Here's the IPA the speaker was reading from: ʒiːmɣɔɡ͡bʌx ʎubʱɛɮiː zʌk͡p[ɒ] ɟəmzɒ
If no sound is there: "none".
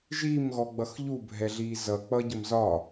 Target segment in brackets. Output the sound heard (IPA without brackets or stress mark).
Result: ʌ